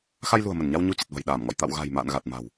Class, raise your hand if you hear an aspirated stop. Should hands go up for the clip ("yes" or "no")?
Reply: no